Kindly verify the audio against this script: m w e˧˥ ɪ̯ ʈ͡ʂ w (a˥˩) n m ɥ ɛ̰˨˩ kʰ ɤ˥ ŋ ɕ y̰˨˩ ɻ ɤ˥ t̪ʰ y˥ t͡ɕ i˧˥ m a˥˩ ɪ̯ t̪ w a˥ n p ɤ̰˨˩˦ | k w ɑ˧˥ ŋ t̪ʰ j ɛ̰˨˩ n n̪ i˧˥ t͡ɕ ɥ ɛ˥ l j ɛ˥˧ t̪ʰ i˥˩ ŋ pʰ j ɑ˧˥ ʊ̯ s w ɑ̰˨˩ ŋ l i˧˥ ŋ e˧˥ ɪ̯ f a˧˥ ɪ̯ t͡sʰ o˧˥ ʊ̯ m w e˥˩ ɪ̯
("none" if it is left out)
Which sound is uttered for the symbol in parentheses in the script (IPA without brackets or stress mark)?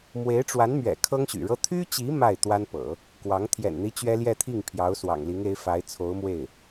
a˧˥